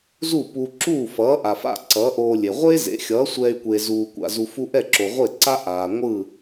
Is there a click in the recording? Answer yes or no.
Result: yes